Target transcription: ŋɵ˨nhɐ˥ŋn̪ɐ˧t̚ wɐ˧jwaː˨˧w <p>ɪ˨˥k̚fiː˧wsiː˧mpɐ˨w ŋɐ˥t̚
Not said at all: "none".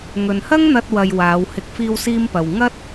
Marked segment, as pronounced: h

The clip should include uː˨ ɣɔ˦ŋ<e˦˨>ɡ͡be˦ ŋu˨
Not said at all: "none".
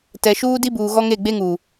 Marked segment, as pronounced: e˦˨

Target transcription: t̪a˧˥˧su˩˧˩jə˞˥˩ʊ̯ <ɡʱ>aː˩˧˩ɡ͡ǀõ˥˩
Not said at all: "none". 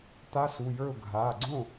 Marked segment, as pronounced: ɡʱ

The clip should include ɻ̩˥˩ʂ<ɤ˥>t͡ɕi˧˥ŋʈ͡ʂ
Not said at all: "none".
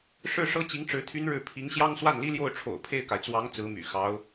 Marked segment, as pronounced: ɤ˥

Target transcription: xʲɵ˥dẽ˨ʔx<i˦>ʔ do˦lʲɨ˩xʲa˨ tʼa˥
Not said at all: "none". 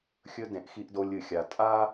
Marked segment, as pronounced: i˦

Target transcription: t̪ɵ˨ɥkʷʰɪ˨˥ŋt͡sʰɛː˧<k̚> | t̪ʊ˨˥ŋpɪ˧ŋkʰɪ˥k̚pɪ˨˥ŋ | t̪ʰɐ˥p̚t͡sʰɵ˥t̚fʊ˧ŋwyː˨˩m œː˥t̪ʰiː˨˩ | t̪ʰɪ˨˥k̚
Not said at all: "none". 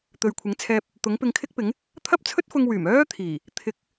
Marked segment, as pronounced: p̚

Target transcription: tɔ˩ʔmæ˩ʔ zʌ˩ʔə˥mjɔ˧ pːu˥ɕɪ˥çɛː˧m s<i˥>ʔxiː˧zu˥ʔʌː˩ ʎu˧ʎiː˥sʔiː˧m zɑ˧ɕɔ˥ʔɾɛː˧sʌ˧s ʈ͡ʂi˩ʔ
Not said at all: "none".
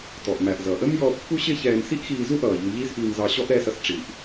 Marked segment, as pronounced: i˥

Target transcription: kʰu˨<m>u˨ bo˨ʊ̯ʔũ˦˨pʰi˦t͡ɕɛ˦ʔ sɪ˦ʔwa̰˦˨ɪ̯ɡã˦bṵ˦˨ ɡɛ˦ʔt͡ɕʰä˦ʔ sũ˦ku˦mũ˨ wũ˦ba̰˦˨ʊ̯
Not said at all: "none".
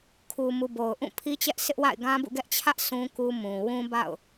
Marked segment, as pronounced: m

